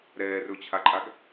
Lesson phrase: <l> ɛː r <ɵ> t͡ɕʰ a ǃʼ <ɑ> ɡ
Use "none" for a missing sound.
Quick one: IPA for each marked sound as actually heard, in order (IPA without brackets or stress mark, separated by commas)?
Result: ɾ, ɵ, a